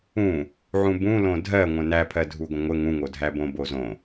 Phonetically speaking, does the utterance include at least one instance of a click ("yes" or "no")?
no